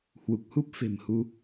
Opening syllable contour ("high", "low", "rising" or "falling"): low